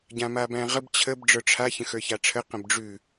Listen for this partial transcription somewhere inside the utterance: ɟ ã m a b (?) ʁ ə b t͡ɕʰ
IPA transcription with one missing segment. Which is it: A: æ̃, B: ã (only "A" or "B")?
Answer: A